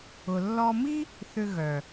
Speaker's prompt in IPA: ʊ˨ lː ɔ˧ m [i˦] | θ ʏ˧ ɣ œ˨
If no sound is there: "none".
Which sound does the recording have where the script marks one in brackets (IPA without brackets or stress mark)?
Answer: i˦